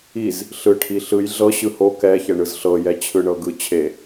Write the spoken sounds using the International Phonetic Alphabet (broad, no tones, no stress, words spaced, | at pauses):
iz | ɬɯʈʰi ɬɯj ɮɤ ɕɯho kɛçɛ ɳɯzɬɤjɛ t͡ɕʰɯɳɤɡɯ t͡ɕʰe